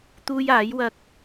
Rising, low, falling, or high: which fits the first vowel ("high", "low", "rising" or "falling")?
high